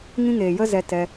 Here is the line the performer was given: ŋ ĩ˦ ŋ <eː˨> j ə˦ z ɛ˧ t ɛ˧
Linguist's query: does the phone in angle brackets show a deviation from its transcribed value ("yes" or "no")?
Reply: no